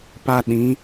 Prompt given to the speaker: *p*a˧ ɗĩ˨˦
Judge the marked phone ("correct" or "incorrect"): correct